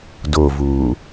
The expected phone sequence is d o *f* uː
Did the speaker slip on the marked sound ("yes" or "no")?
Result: yes